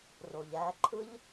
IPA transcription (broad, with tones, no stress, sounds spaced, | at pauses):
r o˨ ʎ æ˧ ǃʰ ɯ˦ ʎ